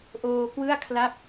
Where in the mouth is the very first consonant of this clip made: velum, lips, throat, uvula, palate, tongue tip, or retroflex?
throat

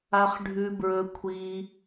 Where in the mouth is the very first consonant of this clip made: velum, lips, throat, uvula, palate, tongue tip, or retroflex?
uvula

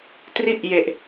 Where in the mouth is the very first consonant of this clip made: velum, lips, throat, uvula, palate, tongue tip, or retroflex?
tongue tip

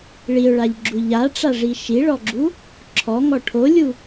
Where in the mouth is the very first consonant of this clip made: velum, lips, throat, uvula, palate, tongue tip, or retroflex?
retroflex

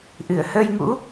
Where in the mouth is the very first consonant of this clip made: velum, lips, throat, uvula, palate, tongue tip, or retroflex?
throat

